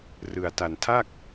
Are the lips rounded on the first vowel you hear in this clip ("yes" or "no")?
no